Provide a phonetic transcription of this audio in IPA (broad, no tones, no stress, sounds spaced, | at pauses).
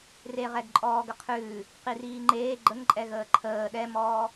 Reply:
r e ʁ ɛ ɡ ǃʼ ɔː ɡ ə qʰ ʉː | q i r iː ŋ͡ǃ eː ɡ͡ǃ ə ŋ ǃʼ ɛ ɣ əː ǃʰ əː ɗ ɛ m ɔː